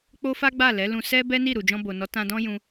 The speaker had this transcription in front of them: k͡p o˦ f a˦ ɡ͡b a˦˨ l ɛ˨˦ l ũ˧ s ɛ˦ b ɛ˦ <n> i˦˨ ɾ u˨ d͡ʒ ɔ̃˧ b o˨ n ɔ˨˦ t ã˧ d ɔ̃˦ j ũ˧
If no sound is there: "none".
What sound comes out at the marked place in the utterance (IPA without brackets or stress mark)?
n